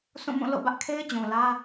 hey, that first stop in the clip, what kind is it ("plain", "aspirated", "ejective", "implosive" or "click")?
plain